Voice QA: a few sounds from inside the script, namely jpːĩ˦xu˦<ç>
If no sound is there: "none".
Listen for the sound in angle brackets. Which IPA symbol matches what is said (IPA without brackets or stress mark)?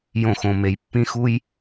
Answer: j